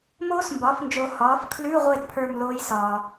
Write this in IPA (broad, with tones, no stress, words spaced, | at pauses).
moː˦˥smbɒː˩˥fnd͡ʒo˨ hɒː˩˥f kʰlʉ˧˥˧ʁʷe˦˨d pʰə˞˦˨m loː˦˥jsɒː˨